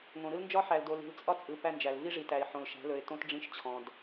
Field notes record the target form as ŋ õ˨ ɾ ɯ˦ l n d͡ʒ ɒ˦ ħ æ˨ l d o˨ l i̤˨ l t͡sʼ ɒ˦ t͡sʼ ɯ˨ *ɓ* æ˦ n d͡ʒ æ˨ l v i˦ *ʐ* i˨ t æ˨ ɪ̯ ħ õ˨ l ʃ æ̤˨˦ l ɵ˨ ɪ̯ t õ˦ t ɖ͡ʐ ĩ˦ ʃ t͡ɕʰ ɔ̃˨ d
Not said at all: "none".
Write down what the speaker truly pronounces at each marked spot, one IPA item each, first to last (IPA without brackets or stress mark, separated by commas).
p, ʐ